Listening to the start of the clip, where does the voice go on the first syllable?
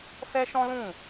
high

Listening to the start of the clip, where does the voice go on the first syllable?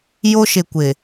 high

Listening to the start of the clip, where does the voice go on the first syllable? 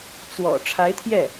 low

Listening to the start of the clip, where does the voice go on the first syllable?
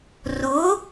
rising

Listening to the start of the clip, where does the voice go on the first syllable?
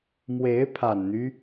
rising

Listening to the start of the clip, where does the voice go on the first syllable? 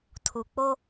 low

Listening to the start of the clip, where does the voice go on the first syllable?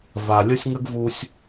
low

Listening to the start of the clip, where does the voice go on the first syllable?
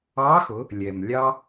rising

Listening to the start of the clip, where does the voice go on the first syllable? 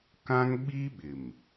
high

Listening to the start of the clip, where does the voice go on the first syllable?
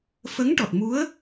rising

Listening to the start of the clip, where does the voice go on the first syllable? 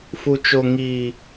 low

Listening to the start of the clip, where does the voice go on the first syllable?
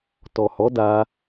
low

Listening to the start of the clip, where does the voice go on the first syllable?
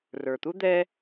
low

